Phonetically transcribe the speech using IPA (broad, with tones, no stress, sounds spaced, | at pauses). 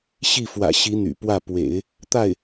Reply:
ɕ i˥˩ f w ä̰˨˩ ɕ i˧˥ n̪ y̰˨˩ p w ä˥˩ p w ḛ˨˩˦ ɪ̯ | t̪ a˥˩ ɪ̯